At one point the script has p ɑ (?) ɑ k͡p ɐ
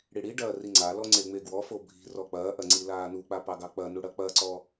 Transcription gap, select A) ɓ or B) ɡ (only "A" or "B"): B